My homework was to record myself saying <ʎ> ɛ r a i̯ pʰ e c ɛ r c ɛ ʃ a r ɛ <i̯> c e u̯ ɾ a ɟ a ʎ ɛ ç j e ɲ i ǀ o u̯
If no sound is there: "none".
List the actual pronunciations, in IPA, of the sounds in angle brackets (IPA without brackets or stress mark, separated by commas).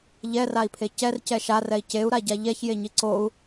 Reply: ʎ, i̯